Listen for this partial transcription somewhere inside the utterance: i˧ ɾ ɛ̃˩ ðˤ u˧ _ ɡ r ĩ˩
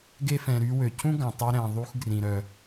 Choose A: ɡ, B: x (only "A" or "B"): B